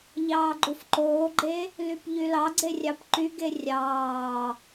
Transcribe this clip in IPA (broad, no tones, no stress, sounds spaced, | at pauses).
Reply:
ʎ ɑː ɡ͡ǃ u f ǃ oː ɡ͡ǃ e | l y p ʎ y l ɑ ɡ͡ǀ e rʲ ɑ p ǃ y ɡ e rʲ ɑː